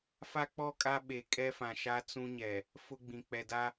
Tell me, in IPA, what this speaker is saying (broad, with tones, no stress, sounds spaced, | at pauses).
f a˦ k͡p ɔ˦˨ kʼ a˦ ɓ e˨ kʼ ɛ˦ f ã˨ ʃ a˦ t͡s ũ˦ ɲ ɛ˨ | f ʊ˦ ɡ͡b ĩ˨ k͡p ɛ˨ d a˦